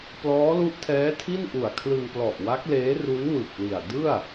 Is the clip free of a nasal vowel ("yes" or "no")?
yes